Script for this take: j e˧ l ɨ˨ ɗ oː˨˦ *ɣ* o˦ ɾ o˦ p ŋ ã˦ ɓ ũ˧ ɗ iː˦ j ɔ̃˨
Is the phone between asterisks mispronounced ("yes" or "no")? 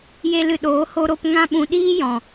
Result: yes